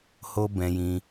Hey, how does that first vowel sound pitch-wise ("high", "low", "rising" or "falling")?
high